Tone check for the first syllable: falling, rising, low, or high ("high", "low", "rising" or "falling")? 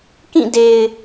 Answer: falling